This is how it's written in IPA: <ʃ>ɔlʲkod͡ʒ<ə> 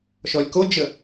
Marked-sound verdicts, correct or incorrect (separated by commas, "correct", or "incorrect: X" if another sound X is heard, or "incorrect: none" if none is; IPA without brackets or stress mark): correct, correct